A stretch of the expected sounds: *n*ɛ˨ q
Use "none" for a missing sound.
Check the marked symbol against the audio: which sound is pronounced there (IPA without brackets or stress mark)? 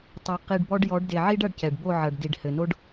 tˤ